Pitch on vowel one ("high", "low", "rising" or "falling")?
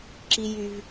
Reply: high